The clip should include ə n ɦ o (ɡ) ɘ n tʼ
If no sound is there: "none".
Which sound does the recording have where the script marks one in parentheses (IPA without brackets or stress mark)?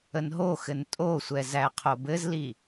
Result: x